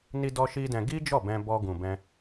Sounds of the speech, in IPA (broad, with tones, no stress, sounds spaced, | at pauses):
n i˧ d ɔ˧ ʃ i˧ d ɛ̃˧ ɡ i˦ d͡ʒ ɔ˦˨ b ɛ̃˧ b ɔ˧ ɡ ũ˨ b ɛ̃˧